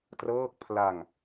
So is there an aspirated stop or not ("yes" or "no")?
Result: yes